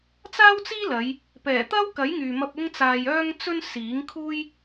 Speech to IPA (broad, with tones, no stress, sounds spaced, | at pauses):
t͡s aː˥ w t͡s iː˥ l ɐ˨˧ j | p ɛː˨˩ t̪ ɐ˥ w k ɐ˨˥ j ŋ yː˨ m ɐ˧ p̚ ʊ˥ ŋ t͡s aː˧ j œː˥ ŋ t͡s ɵ˥ n s iː˨˥ ŋ kʰ uː˥ j